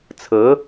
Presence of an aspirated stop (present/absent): present